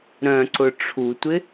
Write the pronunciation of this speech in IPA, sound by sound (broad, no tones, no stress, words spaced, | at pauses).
ɾœ̃ǀʊ ʈ͡ʂʰutʷɪ